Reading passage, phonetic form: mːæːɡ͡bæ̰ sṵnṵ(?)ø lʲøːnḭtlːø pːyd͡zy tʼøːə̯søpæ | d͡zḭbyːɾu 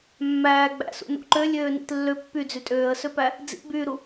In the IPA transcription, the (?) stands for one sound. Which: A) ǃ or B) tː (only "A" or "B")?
A